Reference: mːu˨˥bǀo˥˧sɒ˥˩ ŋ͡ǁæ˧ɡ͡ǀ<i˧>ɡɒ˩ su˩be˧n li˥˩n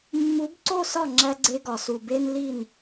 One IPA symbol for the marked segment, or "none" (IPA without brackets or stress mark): e˧